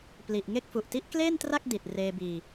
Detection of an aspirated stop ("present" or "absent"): absent